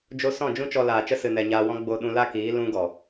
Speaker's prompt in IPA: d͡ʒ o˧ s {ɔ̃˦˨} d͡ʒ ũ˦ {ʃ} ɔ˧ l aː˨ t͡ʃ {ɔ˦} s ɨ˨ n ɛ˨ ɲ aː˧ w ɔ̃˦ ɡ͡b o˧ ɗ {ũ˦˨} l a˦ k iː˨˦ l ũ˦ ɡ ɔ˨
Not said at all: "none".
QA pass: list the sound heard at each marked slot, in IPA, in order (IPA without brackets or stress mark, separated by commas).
ɔ̃˦˨, t͡ʃ, ə˦, ũ˧